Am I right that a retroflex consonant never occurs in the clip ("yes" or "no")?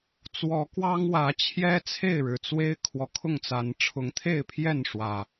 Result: no